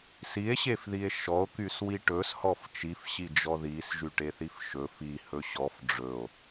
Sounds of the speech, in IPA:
s i e̯ ɕ e f ð i e̯ ʃ ɔ o̯ k y s w i ʈ ɵ s h ɔ f t͡ʃ i f ɕ i d͡ʒ ɔ ð i s ʒ y ʈ e θ i f ʃ ɵ f i h ɵ ɕ ɔ f ɖ͡ʐ ɵ o̯

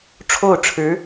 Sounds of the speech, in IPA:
ʈ͡ʂʰ o˥˩ ʊ̯ ʈ͡ʂʰ ɻ̩˧˥

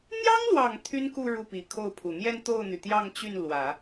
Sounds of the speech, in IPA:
n̪ j ɑ˥ ŋ l w ɑ˨˩ ŋ t̪ʰ y˥ n k u˥˧ ɻ u˥˩ p i˨˩ kʰ o˥˩ ʊ̯ pʰ u˨˩ n̪ j ɛ˥˧ n t̪ o˥˩ ʊ̯ n̪ y˩ t̪ j ɑ˥˧ ŋ t͡ɕ y˥˩ n l w ä˨˩˦

